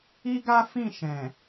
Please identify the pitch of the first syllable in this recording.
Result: high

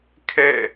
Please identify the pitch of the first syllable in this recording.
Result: falling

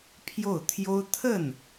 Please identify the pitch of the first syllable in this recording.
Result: falling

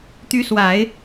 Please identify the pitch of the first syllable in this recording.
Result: rising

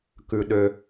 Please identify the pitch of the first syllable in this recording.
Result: low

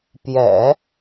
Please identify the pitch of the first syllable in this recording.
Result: low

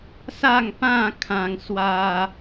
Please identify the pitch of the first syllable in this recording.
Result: falling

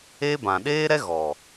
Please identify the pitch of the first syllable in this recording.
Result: high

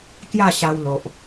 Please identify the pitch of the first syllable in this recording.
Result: falling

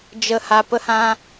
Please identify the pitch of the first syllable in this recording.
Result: high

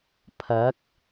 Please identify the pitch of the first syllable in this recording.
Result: rising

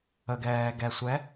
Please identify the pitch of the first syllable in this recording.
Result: low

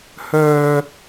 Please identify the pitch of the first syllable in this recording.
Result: high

